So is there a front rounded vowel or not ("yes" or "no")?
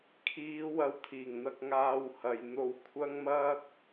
no